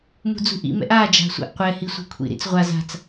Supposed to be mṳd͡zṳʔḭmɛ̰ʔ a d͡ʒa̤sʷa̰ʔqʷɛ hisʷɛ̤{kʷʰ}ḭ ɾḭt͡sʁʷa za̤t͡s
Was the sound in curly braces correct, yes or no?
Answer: yes